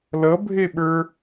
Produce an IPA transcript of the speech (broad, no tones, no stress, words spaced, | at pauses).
lʌbʱeɓə˞